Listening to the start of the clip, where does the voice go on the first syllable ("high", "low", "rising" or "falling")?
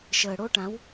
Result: low